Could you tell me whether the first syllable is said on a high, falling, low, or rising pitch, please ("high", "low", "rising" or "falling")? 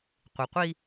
low